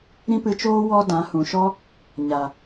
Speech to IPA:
ɾ ĩ˦ p ɨ˧ t͡ʃ oː˦ w ɔ˦ d ã˨˦ h ũ˨ ʃ ɔ˦ | ɲ a˨

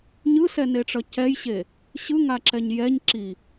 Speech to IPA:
ɲ ɯ s ɛ n e ʈ͡ʂ ʌ c ɛ j ɕ e | ɕ ɯ ŋ a ǁ ɛ ɲ j ɛ ɲ ǁ i

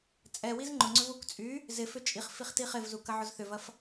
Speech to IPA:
t͡sʼ ɛ w i z ŋ͡ǃ ʊ ŋ͡ǀ ʏ v u k t͡sʼ y | z ɪ f ʏ t͡ʃʼ i χ f i χ t i χ ɪ v z u k ɐ ʕ ʊ z θ ʏ v ɐ f

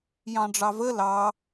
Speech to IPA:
j ɑ̃ ɖ͡ʐ ɑ v ə l ɑ

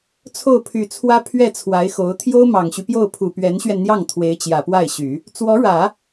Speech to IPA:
t͡sʰ o˥˩ ʊ̯ pʰ y˨˩ t͡sʰ w ä˥ pʰ ɥ ɛ˥˩ t͡sʰ w a˧˥ ɪ̯ x o˧˥ ʊ̯ t̪ʰ j o˥ ʊ̯ m ɑ˨˩ ŋ ɕ y˦ p j o˥˩ ʊ̯ pʰ u˨˩ p ɥ ɛ˧˥ n ɕ ɥ ɛ˧ n n̪ j ɑ˥˩ ŋ t̪ʰ w e˧˥ ɪ̯ t͡ɕ j ä˨˩ p w a˥˩ ɪ̯ ɕ y˨˩˦ | t͡s w ɔ˧˥ ɻ ä˨˩˦

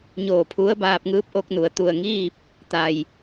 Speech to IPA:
ɲ oː˧˩ pʰ u˧˥ ə̯ b aː˧ p̚ ŋ ɯː˧˥ p̚ ʔ o˧ k̚ n u˩ ə̯ t̪ u˧˩ ə̯ ŋ iː˥˨ p̚ | t̪ a˩ j

